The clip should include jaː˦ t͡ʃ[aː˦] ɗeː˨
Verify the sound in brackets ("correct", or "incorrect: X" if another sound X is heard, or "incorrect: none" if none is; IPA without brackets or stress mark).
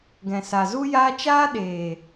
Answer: correct